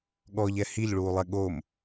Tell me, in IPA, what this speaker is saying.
ɠ ɔ ʎ ɛ h i ʎ ɭ uː lˠ ɛ ɠ o m

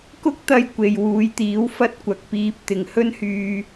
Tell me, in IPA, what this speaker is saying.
k ʊ˥ k̚ t̪ ɐ˧ j kʷ e˨ j w uː˨˧ j t̪ iː˨˥ w f ɐ˥ t̚ kʷ ɐ˨˥ k̚ p iː˧ p̚ t̪ ɪ˨ ŋ h ɵ˥ n h yː˧

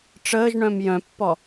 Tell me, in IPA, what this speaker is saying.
ʈ͡ʂ əː ʒ ɳ œ̃ m j œ̃ pː ɔ

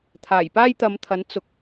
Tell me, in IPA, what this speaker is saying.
t̪ʰ aː˨˩ j p aː˥ j t̪ ɐ˨˧ m t̪ʰ ɐ˨˥ n t͡s ʊ˨ k̚

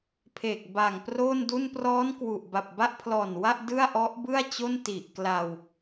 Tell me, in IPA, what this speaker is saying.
pʰ eː˨˩ k̚ b a˨˩ ŋ p r oː˥˩ n d u˥˩ n p r ɔː˦˥ n k w u˨˩ ʔ b a˨˩ p̚ b a˥˩ ʔ pʰ l ɔː˨˩ n w a˥˩ ʔ d ɯ˥˩ a̯ ʔ ɔ˦˥ ʔ b ɯ˥˩ a̯ t͡ɕ o˥˩ n t i˨˩ ʔ k l a˧ w

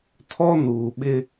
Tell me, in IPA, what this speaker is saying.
tʰ ɔ˦ n uː˨ ɓ ɪ˦

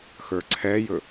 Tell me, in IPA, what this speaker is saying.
x ə˞ ǀʰ ɛ j ɵ

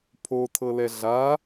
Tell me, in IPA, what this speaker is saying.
pʰ o tʰ ɤ l ɛ ɮ a

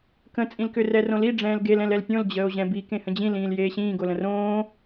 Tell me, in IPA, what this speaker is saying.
k ə̃ t͡sʼ ĩ l k ʏ r ɛ r õ l i ɖ͡ʐ ɛ̃ː l ɡ e l ɛ̃ l ɛ l pʲ õ l d͡ʑ əː o̯ ʑ ɛ̃ b i k ẽ h ə̃ d͡ʑ ĩ l ĩː l j eː ɕ ĩː ɡ o l ə̃ r õː

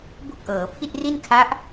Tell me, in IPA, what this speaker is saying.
b u˥˩ k̚ ʔ ɤː˩˦ pʰ i˥˩ t̚ r i˥˩ n kʰ a˦˥ ʔ

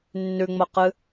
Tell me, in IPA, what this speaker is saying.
nː ʉ ŋ͡m ɐ q ɨ

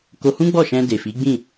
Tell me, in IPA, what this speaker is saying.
k o˧ h ũ˦ ɡ͡b ɔ˦˨ ʃ ɛ̃˧ d e˨ f i˨˦ ɡ͡b ĩ˦˨

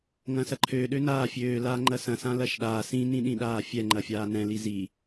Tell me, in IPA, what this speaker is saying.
ŋ ɐ̃ s ɐ ǃʰ ø ɗ ø n aː fʲ øː l aː ŋ͡ǃ ɐ s ɐ̃ s ã l ɐ ʃ ɗ aː s ĩ n ĩ ɗ ĩ ɗ aː fʲ ɛ ŋ͡ǃ ɐ fʲ aː n ɛ̃ l i z i

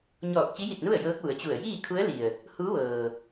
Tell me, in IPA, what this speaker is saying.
ɲ ɔː˧˩ k̚ t͡ɕ i˧˥ j i˧˩ t̚ n u˥˨ ə̯ j ɤː˧˥ k̚ ʋ u˩˧ ə̯ t͡ɕ u˧˩ ə̯ j iː˥˨ kʰ u˧˥ ə̯ l i˩ ə̯ | h u˧˥ ʋ ɤː˩

